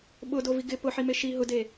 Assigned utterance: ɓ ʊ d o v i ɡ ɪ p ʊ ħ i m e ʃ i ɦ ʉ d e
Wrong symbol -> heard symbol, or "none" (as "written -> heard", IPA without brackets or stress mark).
ʉ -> ʊ